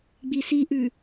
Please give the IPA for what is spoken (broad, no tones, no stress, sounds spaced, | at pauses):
ɡ͡b i s i ʔ ʉ